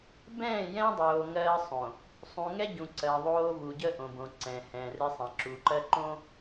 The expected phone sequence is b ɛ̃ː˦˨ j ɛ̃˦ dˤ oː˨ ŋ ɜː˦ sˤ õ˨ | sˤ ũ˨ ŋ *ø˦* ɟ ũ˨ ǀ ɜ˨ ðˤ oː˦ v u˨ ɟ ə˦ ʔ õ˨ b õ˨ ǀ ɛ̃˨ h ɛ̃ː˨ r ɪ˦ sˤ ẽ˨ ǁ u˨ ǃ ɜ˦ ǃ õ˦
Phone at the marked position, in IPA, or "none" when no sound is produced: ɛ˦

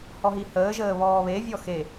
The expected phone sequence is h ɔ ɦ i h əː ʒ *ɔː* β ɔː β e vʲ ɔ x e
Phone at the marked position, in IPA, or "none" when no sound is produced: əː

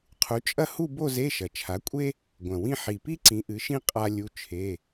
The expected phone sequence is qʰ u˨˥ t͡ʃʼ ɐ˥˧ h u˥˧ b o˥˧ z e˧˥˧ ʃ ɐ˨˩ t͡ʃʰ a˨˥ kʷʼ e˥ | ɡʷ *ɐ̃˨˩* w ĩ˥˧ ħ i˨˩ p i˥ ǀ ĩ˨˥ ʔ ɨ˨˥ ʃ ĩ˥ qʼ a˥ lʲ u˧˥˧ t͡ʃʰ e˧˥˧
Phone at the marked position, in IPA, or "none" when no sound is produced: ɐ̃˨˩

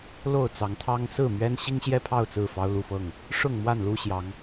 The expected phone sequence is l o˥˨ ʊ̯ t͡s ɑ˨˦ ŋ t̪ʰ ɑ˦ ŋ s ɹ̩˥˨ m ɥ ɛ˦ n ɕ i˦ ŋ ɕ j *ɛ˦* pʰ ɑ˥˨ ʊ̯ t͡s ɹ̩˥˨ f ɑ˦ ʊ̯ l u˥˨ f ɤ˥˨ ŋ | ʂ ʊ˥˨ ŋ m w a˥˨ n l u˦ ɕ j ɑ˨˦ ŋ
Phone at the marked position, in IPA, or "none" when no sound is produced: ɛ˥˨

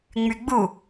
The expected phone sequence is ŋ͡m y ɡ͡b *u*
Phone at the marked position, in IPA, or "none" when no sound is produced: u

